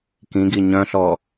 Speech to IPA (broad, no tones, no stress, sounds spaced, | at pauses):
k ĩ ɡ i ɲ œ̃ ɬ ɔ